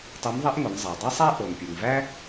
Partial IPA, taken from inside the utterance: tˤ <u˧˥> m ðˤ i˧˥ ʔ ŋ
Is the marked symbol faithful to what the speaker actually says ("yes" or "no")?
yes